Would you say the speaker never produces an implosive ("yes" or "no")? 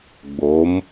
yes